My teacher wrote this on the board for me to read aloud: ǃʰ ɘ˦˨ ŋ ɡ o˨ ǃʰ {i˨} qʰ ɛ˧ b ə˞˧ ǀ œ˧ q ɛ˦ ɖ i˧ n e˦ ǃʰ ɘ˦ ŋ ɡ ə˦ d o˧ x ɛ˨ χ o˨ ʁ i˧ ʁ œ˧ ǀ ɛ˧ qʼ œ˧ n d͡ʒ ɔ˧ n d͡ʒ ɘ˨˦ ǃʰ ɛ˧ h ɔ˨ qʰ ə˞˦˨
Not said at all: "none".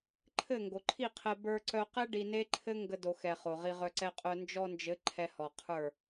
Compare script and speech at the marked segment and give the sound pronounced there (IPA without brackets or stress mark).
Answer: i˦˨